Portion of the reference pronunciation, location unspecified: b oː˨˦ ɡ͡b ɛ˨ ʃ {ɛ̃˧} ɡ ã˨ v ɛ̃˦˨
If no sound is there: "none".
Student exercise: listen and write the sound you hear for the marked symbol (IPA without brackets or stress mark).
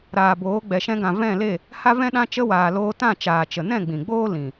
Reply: ɛ̃˧